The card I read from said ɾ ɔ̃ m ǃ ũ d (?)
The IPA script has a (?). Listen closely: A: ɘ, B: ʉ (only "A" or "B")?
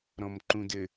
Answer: A